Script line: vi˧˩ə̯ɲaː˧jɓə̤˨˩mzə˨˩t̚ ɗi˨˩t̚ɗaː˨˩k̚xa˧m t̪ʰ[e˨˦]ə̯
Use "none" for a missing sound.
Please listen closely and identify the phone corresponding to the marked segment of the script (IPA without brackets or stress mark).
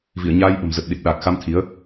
i˨˦